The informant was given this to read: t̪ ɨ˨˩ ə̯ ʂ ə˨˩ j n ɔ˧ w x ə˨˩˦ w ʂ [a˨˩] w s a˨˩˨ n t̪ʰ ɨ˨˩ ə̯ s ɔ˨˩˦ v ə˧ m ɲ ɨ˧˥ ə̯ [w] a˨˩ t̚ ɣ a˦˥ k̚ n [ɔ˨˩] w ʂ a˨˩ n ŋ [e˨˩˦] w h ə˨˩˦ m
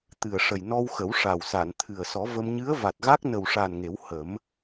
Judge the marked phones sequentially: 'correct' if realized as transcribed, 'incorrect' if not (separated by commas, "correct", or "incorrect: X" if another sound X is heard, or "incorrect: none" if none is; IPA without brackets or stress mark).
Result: correct, incorrect: v, incorrect: ə˨˩, correct